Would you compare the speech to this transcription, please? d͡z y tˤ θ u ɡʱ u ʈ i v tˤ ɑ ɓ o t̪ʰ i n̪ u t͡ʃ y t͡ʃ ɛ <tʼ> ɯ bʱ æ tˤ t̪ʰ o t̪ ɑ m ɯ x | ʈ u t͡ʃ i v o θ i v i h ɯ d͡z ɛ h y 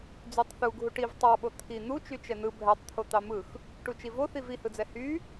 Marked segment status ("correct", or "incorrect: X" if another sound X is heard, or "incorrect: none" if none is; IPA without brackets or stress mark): incorrect: n̪